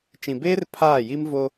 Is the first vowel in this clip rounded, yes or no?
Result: no